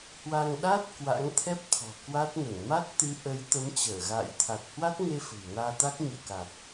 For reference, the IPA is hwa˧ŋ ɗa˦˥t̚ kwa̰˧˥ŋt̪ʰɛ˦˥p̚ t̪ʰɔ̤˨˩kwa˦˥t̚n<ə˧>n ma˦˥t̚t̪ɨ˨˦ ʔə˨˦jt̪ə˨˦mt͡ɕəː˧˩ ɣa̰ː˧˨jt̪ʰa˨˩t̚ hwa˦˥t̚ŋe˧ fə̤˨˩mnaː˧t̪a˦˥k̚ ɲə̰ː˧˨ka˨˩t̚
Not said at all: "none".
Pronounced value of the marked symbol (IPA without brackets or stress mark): ə˧˩